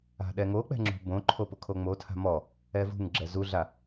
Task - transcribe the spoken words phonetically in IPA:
a̤ ɗ ɛ ŋ o k͡p ɛ̤ ŋ͡ǁ ṳ b õ ǃʰ o p ʊ kʰ o ŋ͡m o tʰ a̤ m ɔ | ɛ v ṳ ŋ ɡ͡ǁ ɛ z u ɮ a

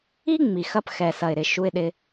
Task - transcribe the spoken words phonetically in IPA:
i˦ ŋ͡m i˨ x ɐ˧ p x ɛ˨ s ɐ˨ ɪ̯ ɾ ɪ˧ ʃ u˧ ɪ̯ ɗ ɪ˧

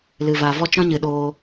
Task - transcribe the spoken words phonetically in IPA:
l ɨ˨ v a˨ v ɔ˧ t͡ʃ ɔ̃˦ ɲ ɨ˨ ɗ oː˧

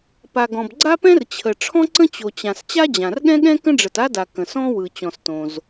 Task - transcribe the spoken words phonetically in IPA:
p a˩ ɡ ɔ̃˩ b ɡ͡ǀ a˥ p ɛ̃˥ r t͡ɕʰ ə˩ ʈ͡ʂʰ ɔ̃˥ ǀ ə̃˥ t͡ɕ o˩ t͡ɕ ã˩ s t͡ɕ a˥ d͡ʑ ã˩ r ɠ ɛ̃˥ ɠ ɛ̃˥ k ə̃˥ ɖ͡ʐ ə˩ t a˥ d a˩ k ə̃˩ s ɔ̃˥ w ɯ˩ t͡ɕ ɔ̃˩ s t õ˩ z

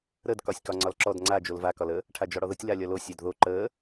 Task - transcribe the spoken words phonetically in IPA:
ɾ ə d k ɒ sʲ k ɒ ŋ͡ǀ ɒ l ǁ ɔ d ŋ͡ǀ a d͡ʒ o l v a k ɒ l ə | ʈʰ a d͡ʒ ɒ ɽ ɔ ð ə tʲ l a lʲ ɒ l o sʲ a d ð o ǃ ə

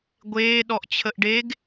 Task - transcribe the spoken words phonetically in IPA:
ɡʷ eː ɗ ɔ ʔ t͡ɕʰ ə ʔ ɖ e ɡ

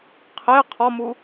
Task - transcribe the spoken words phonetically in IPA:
qʰ e qʰ ɒ m u

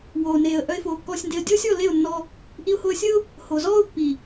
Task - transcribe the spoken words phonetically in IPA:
w oː˨ n eː˨ ə̯ ʔ œ˦ ɪ̯ f oː˧ kː ɔː˦ sʲ n d e˦ ə̯ dʲ oː˦ sʲ ɔ˦˨ l e˦˨ ʊ̯ nː ɔ˧ | ʔ i˧ ʊ̯ h o˧ ə̯ sʲ ə˦ ʊ̯ | h o˨ z ɔː˦ ʊ̯ pː i˨

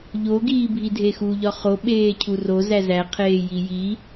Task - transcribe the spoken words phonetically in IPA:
ʎ o ɡ iː bʱ i dʱ e x u ʎ ɒ χ o ɓ eː cʰ u r o z æ z æ qʰ eː j i j i

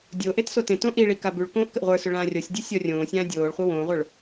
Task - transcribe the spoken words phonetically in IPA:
dʲ o ʔ e t s o t ẽ t õ ʔ i ɭ i k a b ʉ ɭ k õː ʔ k ə ʔ ʁʷ ə˞ s ʏ ɭ ãː rʲ ɔ sʲ dʲ ʉ sʲ ɔ rʲ õː sʲ ãː dʲ oː ɭ χʷ ə w õː ʁʷ ə˞ ɭ

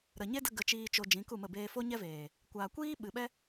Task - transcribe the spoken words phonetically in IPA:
ɾ ə˨ ɲ e˦ d ə˧ ɡ ə˨ t͡ʃ iː˨ t͡ʃ o˨ d͡ʒ ĩ˨˦ k u˦˨ m ə˦˨ b eː˧ f o˦ ɲ ɛ˦ v eː˨ | kʷ aː˨ kʷ iː˦ ɓ ɨ˨ ɓ ɛ˦

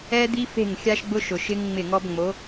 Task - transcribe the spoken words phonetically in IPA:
ɛ˦ d̪ i˦ f e̤˦˨ ŋ xʲ a˦ ʃ ɡ͡b ʊ˦ ʃ ʊ˨ ʃ ɪ˦ ŋ ŋ͡m ɪ˦˨ ŋ ɔ˦ b ŋ͡m o˨˦

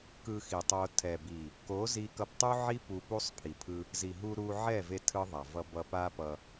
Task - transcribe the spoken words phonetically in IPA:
k ɯ˧ x i˨ tˤ o˧ tʰ ɛ˨ b i˨ | k o˨˦ z i˧ k ʌ˧ p tˤ u˦ ʕ i˦ p u˧ p u˦ sˤ pʰ i˨ pʰ ɯ˧ | z i˨ ɦ u˧ ɾ u˧ ʕ ɛ˦˨ v e˧ tʰ ɯ˦ ðˤ a˨ v ʌ˧ b ʌ˧ p a˦ p ʌ˧

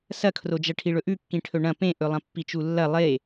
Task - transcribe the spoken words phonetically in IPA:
s ɐ kʰ r o d͡ʒ ɐ ʈʰ i ɭ ɵ ʔ ʉ kː ĩ ʈʰ ɵ ɳ ɐ̃ p ẽ ʔ ɵ lˠ ɐ̃ pː i t͡ʃ u lː ɐ lˠ e

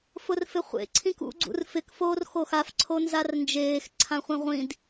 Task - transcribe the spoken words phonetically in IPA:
f ʊ r f ɪ χʷ ḛ ǀʰ ĩ k ṵ ɡ͡ǀ ṵ r f ɪ k f oː r x o x a f ǀʰ o n z a r n d͡ʒ eː x ǀʰ ã χʷ ẽ ʁʷ ĩ d

